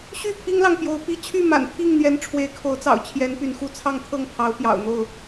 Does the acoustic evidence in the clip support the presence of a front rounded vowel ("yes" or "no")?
yes